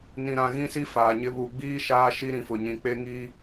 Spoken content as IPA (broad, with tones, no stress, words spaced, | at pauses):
nĩ˨ɾã˨ɣĩ˦si˦ faː˨ɲɪ˦ βu˨ɡ͡biː˦ ʃaː˦ʃi˦ɾĩ˨fʊ˨ ɲĩ˨k͡pe˦ŋi˦